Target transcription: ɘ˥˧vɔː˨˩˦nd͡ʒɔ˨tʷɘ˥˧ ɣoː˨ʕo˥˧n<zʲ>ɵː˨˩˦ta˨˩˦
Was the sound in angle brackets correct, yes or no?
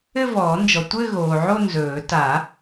no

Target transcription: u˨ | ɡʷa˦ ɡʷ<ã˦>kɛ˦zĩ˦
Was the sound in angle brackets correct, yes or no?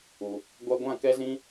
no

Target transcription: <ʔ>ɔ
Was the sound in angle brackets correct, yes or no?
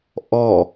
yes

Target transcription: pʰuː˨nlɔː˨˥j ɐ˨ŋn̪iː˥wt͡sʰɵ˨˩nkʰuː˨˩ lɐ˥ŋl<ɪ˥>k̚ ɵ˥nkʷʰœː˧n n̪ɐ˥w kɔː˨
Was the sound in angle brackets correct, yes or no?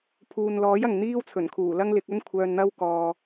no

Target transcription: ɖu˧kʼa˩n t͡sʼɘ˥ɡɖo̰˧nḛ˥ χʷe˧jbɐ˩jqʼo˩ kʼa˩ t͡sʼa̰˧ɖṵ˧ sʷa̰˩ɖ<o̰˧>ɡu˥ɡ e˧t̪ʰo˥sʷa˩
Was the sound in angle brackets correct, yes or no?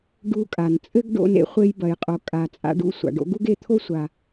yes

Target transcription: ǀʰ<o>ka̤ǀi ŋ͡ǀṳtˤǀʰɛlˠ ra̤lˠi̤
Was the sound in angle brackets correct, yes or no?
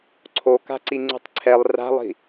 yes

